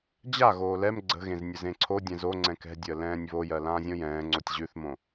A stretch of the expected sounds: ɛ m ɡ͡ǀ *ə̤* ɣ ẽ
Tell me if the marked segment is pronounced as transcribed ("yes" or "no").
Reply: yes